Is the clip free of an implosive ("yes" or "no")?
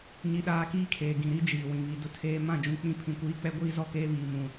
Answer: no